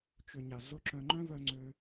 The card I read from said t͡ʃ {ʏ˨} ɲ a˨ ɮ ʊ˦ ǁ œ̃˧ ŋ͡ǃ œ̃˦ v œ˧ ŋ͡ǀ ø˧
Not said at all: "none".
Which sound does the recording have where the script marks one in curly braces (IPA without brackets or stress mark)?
ʏ˨